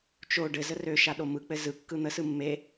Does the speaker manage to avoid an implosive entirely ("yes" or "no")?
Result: no